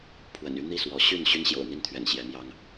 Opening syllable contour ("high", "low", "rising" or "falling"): low